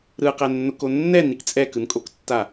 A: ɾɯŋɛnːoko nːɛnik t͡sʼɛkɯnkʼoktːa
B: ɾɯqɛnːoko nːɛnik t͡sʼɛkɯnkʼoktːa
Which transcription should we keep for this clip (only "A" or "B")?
B